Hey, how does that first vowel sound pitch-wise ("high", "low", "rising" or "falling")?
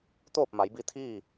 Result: falling